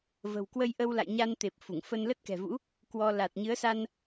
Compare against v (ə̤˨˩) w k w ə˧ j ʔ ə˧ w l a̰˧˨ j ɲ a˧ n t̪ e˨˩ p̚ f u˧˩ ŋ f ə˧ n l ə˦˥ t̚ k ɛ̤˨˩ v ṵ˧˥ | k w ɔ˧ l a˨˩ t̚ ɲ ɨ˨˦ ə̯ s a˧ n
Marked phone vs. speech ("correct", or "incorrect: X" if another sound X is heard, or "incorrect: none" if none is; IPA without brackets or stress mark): correct